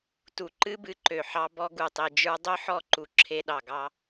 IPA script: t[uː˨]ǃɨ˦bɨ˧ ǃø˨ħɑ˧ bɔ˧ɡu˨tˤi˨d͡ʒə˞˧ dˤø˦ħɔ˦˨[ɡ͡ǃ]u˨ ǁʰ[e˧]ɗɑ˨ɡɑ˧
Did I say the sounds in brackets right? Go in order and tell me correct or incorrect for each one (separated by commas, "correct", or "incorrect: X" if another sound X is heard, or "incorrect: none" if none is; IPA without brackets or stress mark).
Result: incorrect: u˨, incorrect: ǃ, correct